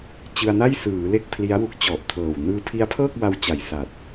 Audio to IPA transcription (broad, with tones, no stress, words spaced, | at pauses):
t͡ɕɯ˧a̯na˥˩jsɯː˩˦ le˥˩k̚pʰli˦˥a̯wu˦˥k̚ t͡ɕɔ˨˩ʔtʰɤː˨˩wnɯː˦˥ pʰi˦˥a̯pʰɤː˥˩k̚wa˧w t͡ɕa˨˩jsa˨˩t̚